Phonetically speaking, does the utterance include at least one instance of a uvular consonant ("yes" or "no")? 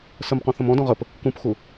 yes